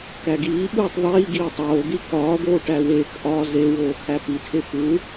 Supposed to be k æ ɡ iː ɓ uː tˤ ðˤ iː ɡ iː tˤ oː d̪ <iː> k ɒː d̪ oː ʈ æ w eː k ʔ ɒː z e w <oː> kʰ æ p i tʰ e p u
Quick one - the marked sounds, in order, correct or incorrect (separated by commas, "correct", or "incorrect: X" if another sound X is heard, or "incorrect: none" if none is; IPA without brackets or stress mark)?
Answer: incorrect: i, correct